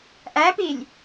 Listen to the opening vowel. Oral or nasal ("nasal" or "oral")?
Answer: oral